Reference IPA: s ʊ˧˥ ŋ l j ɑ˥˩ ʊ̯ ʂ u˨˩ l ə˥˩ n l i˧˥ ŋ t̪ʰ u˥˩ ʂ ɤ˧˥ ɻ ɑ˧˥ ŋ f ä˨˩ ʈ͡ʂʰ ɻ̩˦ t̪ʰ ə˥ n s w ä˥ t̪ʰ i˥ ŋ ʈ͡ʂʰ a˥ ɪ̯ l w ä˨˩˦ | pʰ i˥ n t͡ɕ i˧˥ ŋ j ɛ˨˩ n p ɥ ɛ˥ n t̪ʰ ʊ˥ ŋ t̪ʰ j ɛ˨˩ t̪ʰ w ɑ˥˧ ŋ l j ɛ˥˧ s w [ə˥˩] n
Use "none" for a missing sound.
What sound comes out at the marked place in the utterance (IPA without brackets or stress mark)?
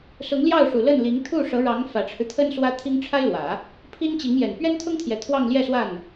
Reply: a˥˩